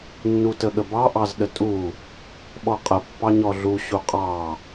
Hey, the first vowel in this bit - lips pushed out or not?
yes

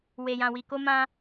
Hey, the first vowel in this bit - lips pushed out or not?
no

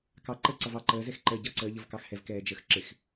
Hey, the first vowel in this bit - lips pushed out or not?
no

